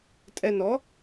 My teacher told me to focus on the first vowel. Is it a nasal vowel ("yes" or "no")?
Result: no